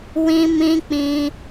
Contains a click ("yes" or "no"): no